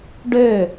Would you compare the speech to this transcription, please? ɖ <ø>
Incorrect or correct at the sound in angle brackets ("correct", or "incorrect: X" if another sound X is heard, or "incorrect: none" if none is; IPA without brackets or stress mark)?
correct